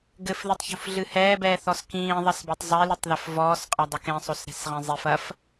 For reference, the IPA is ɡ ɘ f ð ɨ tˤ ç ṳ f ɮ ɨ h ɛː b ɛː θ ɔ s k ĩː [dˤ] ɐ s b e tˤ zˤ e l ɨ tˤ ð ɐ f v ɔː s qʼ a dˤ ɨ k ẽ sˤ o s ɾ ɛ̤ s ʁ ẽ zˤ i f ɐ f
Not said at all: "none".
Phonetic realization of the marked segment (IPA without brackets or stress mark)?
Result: ðˤ